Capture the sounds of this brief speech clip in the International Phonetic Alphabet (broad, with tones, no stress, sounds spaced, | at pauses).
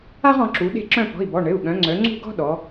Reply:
a˦ ʁ ɔ̃˩˧ ǁ u˩˧ ɗ e̤˦˨ ǁ œ̃˦˨ p ɔ̤˩˧˩ i̯ b ɔ˩˧˩ ɳ ɘ˩˧˩ u̯ ɠ œ̃˩˧ ŋ͡ǀ œ˩˧ ŋ͡ǀ ṳ˦˨ ɡ ɔ̤˦ ɗ ɔ˩˧